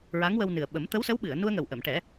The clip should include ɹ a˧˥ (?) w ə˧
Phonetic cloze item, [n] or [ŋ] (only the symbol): ŋ